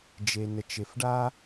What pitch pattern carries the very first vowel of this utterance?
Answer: low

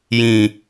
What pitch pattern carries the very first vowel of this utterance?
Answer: low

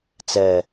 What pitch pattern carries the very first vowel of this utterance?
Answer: low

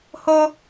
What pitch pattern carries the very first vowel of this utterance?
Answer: high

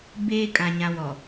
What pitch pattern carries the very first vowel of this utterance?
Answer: high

